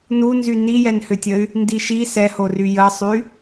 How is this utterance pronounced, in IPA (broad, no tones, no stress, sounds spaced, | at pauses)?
n u n z y n i j ɛ n h ʏ tʲ ə y̯ | n d i ʃ i s ɛ h o r y j ə sˤ y